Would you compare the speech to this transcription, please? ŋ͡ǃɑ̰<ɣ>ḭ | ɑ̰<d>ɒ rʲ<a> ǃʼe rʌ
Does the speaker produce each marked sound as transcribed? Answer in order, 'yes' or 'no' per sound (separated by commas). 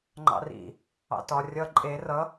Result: no, no, no